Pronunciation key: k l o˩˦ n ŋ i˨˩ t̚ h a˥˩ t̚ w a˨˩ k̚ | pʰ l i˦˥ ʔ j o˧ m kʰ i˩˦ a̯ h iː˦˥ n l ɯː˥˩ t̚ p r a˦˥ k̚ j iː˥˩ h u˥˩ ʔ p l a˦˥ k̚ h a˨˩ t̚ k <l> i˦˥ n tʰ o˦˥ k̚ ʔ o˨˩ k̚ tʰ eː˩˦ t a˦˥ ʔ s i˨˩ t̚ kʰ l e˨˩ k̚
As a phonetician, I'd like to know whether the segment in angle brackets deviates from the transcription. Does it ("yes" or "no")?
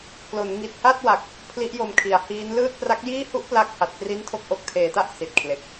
yes